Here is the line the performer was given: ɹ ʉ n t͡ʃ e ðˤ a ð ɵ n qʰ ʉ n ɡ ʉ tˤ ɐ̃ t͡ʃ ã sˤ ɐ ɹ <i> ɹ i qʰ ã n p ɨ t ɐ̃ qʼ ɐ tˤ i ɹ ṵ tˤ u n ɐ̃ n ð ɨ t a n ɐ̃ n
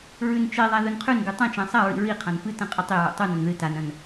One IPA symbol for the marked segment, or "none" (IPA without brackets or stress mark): ḭ